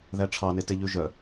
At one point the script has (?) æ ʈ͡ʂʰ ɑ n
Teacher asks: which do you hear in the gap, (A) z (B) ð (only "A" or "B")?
B